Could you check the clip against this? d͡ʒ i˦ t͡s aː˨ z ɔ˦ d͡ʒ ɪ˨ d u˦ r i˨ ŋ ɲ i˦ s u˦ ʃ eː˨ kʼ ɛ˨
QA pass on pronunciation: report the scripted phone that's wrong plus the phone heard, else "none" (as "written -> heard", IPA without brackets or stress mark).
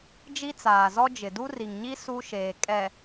none